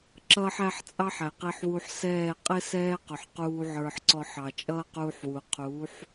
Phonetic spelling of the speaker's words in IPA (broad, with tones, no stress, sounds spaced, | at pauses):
ǁ ʌː˦ ħ æ˦ ħ t͡sʼ ɑ˦ ħ æ˨ q i˧ ħ w u˧ ħ s ɛː˦˨ qʼ ɪ˦ s ɛː˦ q ʊ˨ ħ q uː˧ ʕ ə˞˧ ħ ǀ ɔ˧ ħ ɑ˨ t͡ʃʼ ʌː˦ q uː˧ ħ w u˨ qʰ uː˨˦ ħ